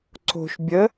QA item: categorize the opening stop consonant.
click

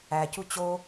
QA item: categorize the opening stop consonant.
plain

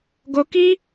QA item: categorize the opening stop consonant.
plain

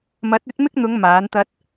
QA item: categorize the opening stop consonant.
plain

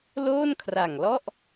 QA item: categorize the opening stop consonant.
aspirated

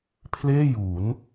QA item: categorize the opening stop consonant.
aspirated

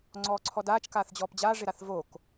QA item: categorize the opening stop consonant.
click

